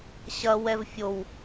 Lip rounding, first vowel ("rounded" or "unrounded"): unrounded